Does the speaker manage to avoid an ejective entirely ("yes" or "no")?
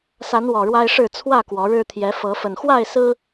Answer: yes